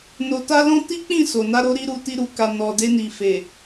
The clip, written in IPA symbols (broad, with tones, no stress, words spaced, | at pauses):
no˧ta˦lɔ̃˦ ti˦k͡pĩ˦˨ so˨na˧ɾo˧ ɾi˨ɾu˨ ti˧ɾu˨ka˨ nɔ˨ de˧ni˨fe˨